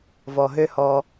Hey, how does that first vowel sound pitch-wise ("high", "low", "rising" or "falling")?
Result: low